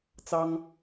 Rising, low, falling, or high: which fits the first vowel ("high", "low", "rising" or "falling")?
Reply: high